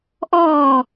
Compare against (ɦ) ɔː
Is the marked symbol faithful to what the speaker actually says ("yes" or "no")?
no